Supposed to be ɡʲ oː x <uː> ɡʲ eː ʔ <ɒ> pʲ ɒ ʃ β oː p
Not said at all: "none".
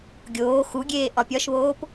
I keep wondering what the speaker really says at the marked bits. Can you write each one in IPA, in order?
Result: u, ɒ

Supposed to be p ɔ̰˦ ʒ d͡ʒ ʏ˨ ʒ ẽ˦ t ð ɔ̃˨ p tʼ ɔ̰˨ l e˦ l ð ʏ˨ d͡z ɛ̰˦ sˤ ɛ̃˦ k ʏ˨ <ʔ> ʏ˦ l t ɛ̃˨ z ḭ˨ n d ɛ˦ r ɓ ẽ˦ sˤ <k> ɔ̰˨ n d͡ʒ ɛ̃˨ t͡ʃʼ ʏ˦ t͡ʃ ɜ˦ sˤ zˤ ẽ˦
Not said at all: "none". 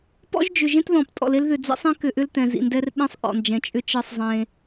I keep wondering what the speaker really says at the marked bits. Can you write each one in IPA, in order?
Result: ʔ, ʔ

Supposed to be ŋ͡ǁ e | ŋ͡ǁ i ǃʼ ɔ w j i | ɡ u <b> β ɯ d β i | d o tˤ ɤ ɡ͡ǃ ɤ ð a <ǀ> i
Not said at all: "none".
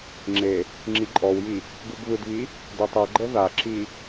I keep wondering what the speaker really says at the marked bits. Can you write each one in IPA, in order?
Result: b, ǁ

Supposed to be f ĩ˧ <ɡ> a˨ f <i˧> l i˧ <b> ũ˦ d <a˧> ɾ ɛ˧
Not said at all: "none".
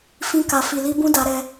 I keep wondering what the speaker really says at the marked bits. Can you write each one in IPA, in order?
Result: k, i˨, b, a˧

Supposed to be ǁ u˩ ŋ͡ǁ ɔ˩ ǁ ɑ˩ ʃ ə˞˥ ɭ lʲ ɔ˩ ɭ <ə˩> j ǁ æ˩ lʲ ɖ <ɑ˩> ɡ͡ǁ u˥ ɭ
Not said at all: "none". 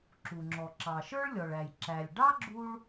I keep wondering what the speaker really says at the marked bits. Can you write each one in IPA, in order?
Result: æ˩, ɑ˥

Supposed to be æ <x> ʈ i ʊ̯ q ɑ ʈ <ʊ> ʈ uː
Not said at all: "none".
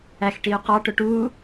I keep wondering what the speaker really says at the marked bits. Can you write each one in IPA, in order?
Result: x, ʊ

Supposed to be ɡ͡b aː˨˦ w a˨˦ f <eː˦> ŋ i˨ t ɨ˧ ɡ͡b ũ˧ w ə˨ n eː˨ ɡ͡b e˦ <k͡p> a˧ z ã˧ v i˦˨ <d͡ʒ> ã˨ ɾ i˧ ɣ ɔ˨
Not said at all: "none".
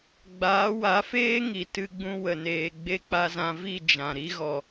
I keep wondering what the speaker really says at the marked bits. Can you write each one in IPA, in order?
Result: eː˦, k͡p, d͡ʒ

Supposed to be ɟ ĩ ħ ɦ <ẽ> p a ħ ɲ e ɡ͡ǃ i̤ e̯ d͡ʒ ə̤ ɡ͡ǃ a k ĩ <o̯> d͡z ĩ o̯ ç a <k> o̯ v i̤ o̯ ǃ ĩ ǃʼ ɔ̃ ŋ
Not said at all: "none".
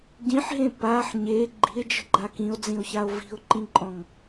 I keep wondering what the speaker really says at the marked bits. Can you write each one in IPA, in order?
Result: ẽ, o̯, none

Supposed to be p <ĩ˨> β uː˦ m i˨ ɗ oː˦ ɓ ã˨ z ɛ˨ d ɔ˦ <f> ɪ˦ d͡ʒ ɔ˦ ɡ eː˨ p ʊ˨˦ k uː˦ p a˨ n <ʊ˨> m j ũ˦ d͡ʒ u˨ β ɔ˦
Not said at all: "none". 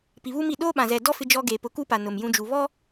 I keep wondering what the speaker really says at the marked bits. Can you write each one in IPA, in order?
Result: i˨, f, ʊ˨

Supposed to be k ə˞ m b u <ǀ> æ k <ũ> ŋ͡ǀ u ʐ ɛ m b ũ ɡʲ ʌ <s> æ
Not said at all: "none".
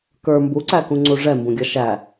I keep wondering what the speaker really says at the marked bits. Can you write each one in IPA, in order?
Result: ǀ, ũ, ʃ

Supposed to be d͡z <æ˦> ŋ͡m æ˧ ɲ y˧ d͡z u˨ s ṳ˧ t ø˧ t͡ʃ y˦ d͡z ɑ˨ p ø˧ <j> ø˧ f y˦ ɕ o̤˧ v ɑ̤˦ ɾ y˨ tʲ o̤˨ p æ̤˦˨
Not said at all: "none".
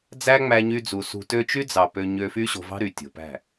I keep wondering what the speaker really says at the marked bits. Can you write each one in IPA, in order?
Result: æ˦, ɲ

